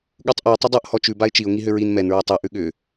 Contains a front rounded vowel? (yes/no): yes